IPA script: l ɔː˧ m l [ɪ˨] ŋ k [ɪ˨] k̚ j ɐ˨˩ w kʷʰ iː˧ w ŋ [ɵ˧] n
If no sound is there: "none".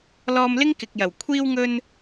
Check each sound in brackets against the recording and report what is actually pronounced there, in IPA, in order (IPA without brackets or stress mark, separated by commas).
ɪ˥, ɪ˨, ɵ˧